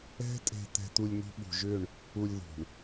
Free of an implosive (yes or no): no